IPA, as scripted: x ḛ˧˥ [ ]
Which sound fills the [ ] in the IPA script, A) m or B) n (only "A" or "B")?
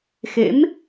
A